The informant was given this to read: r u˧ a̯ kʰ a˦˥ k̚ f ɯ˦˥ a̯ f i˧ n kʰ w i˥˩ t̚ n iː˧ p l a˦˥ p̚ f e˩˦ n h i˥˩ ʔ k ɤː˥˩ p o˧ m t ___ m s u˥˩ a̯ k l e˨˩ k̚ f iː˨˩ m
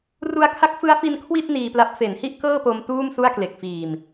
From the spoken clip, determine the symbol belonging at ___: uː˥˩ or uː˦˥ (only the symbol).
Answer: uː˥˩